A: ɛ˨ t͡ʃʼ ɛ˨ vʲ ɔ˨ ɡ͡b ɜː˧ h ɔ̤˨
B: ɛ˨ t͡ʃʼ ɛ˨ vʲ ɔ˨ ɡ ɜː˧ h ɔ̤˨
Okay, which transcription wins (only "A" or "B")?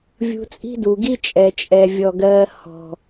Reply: B